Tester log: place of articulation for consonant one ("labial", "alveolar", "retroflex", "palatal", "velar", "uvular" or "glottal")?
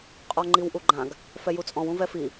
uvular